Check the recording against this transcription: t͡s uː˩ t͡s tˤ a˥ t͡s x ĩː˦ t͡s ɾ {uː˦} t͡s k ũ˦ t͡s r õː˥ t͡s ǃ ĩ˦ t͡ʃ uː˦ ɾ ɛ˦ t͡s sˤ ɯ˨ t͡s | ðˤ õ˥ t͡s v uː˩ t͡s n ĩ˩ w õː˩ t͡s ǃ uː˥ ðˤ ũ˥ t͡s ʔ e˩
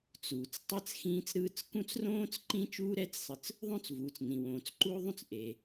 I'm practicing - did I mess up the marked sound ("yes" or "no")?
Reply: yes